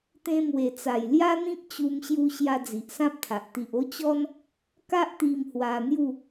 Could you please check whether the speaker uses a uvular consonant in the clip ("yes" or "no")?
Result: no